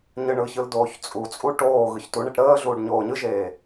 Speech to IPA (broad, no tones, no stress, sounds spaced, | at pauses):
ɲ ɯ ɳ ɯ ç ɯ l d oː ç t͡sʼ u t͡sʼ u ʈ oː ɣ ɯ ç t u ɳ e ʈ ɾ əː ɮ uː ɖ ɲ oː ɲ ɯ ʒ eː